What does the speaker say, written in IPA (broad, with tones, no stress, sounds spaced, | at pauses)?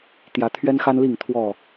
t̪ j ä˨˦ t̪ʰ ɥ ɛ˦ n x a˦ n l i˥˨ ŋ t̪ʰ w ɔ˥˨